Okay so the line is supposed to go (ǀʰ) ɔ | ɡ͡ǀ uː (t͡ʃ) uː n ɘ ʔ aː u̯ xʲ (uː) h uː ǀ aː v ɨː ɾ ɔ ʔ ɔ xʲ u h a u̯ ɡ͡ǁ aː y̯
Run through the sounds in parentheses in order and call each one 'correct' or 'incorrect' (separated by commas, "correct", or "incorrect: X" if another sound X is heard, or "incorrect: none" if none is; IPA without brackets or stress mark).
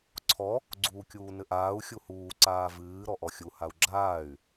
correct, incorrect: kʲ, incorrect: u